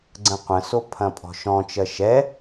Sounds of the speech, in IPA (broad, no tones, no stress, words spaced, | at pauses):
ɡ͡ǀə̃qʷə̃ sopʰɐ̃pʼɔ̤ʃɔ̃ t͡ʃɜʃɛ